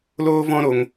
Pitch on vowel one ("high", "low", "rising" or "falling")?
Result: high